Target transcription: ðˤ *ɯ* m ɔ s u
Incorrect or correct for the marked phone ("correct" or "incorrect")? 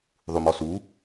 incorrect